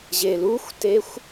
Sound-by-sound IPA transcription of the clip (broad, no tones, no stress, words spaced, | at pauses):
ʑeluxʷtexʷ